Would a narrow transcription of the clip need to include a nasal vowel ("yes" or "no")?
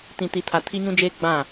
yes